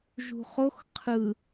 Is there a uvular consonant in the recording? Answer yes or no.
yes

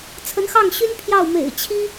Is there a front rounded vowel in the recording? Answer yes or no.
yes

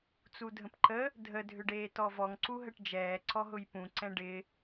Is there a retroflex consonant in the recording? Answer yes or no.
yes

